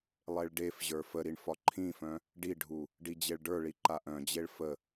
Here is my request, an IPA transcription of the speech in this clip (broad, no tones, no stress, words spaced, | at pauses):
lˠeɭɖefʑə˞ fəɾiɳ fɒǃʰĩfœ̃ | ɖiɖʱu | ɖid͡ʑeɭɖə˞ɭi ǃaʔœ̃d͡ʑeɭ fə